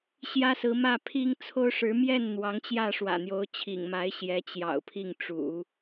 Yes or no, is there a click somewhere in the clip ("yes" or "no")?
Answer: no